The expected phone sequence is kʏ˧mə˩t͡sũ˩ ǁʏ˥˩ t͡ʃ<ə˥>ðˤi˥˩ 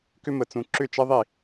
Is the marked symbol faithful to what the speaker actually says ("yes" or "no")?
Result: yes